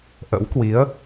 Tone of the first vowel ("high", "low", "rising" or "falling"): rising